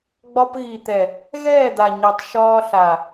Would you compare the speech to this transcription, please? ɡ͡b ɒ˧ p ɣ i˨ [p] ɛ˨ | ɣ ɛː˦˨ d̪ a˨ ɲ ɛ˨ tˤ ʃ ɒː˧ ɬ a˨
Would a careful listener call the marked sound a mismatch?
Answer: yes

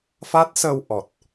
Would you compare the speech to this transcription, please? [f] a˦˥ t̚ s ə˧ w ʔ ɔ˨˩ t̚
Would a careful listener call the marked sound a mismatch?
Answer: no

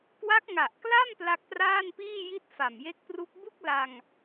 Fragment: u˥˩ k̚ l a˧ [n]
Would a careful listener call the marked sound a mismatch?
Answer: yes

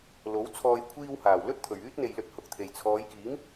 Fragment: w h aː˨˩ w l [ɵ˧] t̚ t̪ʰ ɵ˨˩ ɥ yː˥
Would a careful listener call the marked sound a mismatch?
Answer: yes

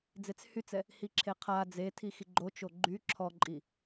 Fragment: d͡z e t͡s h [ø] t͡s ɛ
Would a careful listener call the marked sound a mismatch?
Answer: yes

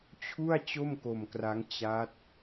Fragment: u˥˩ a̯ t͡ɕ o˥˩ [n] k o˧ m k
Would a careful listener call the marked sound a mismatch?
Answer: yes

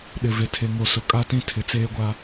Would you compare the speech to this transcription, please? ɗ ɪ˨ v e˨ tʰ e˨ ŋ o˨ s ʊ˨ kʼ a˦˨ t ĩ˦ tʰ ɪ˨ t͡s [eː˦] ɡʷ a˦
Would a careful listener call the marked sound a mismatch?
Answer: no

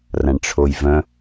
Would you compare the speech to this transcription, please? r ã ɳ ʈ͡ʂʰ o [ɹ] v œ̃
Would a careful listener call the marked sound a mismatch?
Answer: yes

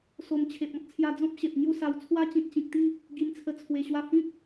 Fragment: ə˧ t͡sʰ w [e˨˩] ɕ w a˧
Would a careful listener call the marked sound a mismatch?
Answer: no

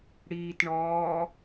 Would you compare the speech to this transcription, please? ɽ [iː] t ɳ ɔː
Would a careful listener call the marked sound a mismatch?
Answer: no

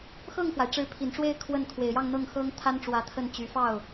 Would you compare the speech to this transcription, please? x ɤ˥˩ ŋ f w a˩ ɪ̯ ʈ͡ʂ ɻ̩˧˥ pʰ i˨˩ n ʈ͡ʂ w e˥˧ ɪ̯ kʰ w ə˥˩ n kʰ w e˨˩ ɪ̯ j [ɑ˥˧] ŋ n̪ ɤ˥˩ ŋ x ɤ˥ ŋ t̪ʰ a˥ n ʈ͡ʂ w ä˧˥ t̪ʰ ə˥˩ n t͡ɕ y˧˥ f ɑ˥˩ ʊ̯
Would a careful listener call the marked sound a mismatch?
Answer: no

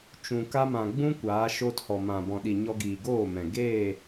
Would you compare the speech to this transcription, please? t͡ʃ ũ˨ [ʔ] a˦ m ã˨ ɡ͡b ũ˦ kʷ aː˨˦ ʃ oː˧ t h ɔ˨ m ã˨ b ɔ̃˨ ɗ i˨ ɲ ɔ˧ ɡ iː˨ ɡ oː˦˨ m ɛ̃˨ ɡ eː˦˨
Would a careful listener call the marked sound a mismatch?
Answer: yes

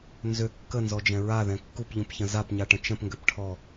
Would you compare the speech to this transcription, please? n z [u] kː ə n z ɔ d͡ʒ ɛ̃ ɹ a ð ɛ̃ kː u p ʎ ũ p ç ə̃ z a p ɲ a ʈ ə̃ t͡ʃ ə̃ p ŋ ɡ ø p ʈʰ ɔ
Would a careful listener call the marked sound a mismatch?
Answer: yes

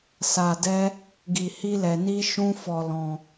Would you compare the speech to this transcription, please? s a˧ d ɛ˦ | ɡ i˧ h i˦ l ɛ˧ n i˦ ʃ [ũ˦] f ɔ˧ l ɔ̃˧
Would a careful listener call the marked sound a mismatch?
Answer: no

